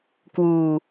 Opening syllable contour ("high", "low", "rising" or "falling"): low